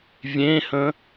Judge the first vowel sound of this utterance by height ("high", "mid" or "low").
mid